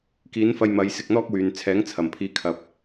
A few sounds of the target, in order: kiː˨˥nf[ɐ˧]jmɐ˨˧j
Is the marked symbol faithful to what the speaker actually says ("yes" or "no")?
yes